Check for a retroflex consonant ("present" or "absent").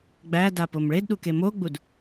present